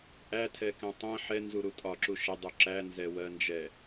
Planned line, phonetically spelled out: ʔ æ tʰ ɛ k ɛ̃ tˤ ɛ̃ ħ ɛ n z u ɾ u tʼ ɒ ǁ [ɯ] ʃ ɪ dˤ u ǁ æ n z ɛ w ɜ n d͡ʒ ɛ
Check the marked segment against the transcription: incorrect: u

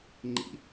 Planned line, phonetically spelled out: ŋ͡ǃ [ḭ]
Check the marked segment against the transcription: correct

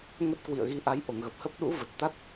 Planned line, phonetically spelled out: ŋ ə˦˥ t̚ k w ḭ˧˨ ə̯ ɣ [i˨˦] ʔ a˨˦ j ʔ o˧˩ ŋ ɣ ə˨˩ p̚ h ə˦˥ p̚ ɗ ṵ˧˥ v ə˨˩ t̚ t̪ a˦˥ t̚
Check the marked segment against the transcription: correct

